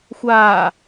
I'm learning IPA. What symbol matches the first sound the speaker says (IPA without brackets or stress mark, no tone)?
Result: xʷ